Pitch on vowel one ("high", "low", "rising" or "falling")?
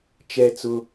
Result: falling